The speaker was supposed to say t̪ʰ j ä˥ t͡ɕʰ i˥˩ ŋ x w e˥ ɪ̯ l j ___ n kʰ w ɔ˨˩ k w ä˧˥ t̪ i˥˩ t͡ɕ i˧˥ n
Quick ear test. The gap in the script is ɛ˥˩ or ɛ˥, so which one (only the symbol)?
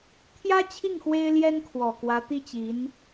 ɛ˥